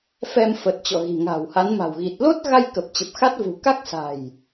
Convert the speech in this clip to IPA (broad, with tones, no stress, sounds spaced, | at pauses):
f ɛ˧ m f ə˨˩ t̚ t͡ɕ ɔ̰˧˨ ɣ i̤˨˩ ŋ a̤˨˩ w h a˨˦ n m a̤˨˩ w ɣ i˨˩ t̚ l o˦˥ t̚ ɣ a˧ j k ə˨˩ p̚ t͡ɕ ə˨˩ p̚ x a˦˥ t̚ v ṳ˨˩ k a˦˥ k̚ s a̤˨˩ j